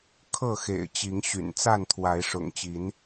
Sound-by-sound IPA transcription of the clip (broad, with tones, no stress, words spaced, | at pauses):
kʰɤ˥˨xḛ˨˩ɪ̯t͡ɕi˨˦ŋɕy̰˨˩n t͡sa˥˨nt̪ʰwa˨˦ɪ̯ ʂʊ̰˨˩ŋt͡ɕi˨˦n